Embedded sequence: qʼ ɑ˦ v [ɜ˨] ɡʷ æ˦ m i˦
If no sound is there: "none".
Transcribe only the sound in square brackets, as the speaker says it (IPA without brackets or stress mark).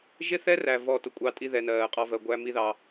ɜ˨